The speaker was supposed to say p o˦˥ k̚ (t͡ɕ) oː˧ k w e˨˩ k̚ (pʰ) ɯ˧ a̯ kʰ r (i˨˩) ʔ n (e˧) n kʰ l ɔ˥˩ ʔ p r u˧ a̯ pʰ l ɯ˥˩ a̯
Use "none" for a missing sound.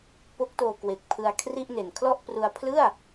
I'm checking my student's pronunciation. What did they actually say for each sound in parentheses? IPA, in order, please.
t, pʰ, i˥˩, e˨˩

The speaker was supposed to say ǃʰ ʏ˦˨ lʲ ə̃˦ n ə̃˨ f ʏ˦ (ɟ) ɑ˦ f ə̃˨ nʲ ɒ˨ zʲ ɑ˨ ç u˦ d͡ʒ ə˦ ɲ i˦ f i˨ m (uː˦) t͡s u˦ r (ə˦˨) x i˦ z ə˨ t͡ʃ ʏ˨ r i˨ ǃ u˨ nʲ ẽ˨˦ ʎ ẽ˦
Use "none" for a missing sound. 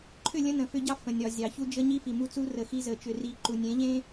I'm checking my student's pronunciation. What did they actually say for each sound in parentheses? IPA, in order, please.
ɟ, u˦, ə˨

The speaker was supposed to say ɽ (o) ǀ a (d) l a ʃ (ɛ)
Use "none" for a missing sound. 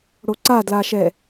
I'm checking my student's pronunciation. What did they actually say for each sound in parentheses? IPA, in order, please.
o, d, ɛ

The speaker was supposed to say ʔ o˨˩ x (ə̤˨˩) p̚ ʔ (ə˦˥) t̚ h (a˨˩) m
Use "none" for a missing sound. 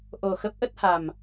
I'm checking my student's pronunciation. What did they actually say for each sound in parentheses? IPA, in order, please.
ə˦˥, ə˦˥, a˨˩

